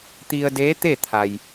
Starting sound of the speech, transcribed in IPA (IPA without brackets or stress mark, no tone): t̪